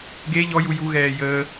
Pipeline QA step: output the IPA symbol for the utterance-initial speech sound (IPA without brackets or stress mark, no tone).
ɡ